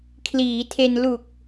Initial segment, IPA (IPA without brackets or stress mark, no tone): kʰ